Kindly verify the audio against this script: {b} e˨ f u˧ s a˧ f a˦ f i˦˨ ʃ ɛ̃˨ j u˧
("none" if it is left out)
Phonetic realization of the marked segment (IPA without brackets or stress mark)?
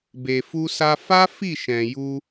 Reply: b